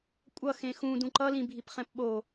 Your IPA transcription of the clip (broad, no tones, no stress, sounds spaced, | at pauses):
kʷʼ ʌ x ẽ x ũ d ũ ǃ ʌ l ĩ bʱ i p χ ɛ̃ p ɓ o